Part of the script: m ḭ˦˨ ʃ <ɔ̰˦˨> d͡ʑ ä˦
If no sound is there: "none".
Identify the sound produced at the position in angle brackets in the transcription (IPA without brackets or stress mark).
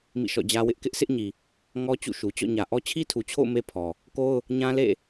ɔ̰˦˨